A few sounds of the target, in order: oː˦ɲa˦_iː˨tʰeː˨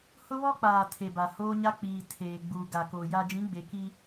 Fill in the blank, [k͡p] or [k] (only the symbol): k͡p